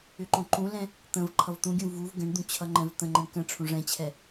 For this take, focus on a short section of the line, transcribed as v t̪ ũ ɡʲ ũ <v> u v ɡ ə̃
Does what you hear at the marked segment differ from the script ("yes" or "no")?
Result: no